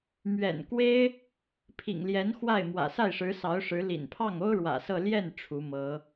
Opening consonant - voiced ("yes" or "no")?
yes